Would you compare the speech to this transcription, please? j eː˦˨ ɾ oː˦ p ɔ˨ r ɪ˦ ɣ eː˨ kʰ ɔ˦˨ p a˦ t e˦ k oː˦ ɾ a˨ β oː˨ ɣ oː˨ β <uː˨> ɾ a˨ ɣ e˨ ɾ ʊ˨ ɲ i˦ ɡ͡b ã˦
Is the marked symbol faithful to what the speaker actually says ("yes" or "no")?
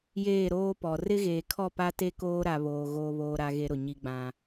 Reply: no